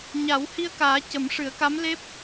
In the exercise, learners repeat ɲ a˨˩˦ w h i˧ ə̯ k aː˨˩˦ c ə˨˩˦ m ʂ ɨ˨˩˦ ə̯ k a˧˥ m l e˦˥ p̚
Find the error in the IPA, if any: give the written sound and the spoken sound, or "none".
none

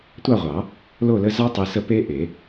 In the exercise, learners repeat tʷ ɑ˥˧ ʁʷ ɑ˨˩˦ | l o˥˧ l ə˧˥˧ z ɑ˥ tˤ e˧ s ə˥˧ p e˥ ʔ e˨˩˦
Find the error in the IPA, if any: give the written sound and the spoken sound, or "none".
none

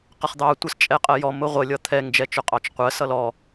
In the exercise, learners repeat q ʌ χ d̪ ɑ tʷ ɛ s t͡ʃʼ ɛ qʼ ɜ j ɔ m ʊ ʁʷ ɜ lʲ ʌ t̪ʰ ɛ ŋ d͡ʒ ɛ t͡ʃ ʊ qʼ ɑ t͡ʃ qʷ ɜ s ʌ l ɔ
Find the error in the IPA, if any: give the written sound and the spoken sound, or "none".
none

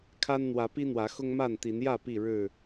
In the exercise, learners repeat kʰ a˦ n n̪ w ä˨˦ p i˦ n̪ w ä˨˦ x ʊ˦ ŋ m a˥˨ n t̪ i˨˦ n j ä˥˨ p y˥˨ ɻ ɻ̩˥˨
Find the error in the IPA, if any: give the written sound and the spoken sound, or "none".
y˥˨ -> i˥˨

